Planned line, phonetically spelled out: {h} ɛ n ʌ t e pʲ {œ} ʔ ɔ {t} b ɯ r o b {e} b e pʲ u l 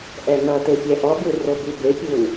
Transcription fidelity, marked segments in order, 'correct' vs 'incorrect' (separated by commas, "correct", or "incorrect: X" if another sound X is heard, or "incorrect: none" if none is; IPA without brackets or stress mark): incorrect: ʔ, incorrect: ɛ, incorrect: none, incorrect: y